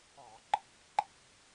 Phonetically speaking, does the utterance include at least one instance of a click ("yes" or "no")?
yes